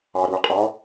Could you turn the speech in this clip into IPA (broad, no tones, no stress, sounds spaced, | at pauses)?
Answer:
ɑ ɾ u ɐ̯ qʼ ɒ